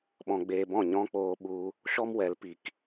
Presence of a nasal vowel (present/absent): present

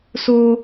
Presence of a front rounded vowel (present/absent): absent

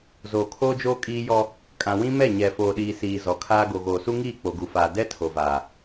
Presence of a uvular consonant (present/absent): absent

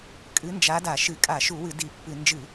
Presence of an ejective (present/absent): present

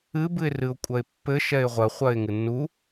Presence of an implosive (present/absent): absent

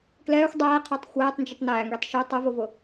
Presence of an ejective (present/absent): absent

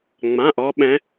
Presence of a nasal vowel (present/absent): present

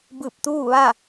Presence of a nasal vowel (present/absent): absent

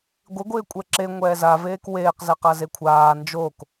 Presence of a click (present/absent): present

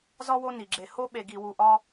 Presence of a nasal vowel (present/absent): absent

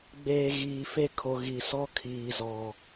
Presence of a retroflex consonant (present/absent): absent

